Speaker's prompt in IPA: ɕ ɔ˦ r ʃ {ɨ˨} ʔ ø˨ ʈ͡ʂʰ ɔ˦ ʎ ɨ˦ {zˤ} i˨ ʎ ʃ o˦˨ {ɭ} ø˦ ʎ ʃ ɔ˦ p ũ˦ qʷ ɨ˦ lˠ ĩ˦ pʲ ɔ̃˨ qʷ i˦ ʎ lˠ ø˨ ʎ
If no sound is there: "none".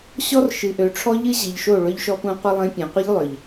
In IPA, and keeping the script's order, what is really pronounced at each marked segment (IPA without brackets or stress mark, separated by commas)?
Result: ɨ˨, ʑ, ɭ